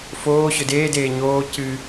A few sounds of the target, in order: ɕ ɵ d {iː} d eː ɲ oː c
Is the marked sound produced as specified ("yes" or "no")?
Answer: no